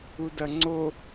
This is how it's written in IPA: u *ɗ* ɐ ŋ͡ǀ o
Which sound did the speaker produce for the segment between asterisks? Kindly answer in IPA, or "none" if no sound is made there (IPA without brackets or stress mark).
d